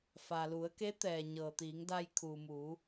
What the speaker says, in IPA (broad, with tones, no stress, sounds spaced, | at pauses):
f a˩ l u˩˧ ə̯ k e˧˥ t̪ ɛː˩ ɲ ɤː˩ t̪ iː˩˧ ŋ d a˧ j kʰ uː˩ m u˩˧